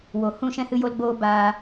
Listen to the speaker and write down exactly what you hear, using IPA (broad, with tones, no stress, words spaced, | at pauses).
wo˨hũ˦˨ʃɛ̃˦ hɨ˦jo˦lɡ͡boː˦ baː˧